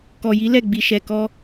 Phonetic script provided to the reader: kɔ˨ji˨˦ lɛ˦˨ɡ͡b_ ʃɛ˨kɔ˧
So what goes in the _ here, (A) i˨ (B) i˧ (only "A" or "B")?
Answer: A